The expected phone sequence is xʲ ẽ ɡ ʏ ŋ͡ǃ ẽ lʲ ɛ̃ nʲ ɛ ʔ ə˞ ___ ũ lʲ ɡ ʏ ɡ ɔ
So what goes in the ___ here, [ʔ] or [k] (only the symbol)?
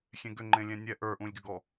ʔ